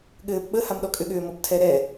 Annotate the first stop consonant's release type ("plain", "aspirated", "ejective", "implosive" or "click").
implosive